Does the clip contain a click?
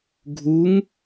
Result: no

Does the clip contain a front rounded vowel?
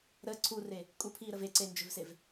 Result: yes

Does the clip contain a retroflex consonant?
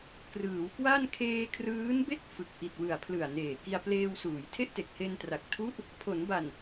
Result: no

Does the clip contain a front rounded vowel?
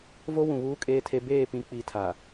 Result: no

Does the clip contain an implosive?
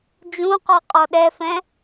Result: yes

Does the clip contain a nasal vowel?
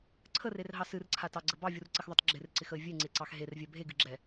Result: no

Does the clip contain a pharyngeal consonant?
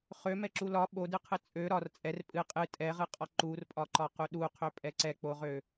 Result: no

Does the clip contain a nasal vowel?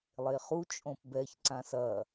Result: yes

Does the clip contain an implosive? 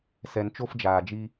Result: no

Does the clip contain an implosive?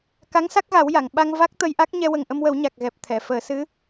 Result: yes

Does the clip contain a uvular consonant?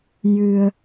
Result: no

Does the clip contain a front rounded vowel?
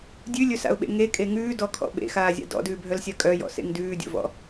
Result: yes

